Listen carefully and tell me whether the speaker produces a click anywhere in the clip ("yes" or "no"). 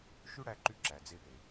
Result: yes